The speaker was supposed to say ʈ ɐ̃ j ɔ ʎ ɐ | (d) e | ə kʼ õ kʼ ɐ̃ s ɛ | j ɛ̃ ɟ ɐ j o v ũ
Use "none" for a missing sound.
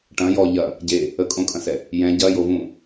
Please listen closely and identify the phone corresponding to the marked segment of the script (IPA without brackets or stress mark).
ɟ